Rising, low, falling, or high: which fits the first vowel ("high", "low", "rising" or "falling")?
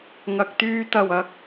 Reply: low